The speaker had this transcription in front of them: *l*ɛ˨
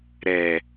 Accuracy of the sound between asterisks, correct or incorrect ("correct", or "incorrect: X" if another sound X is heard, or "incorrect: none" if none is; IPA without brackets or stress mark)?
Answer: incorrect: ɾ